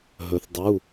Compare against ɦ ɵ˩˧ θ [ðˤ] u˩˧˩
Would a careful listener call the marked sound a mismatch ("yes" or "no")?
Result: yes